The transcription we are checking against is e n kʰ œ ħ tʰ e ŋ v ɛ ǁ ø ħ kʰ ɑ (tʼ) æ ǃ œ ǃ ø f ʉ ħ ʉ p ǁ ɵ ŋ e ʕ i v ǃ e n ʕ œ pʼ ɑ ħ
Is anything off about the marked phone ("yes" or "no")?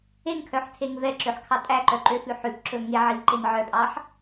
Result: no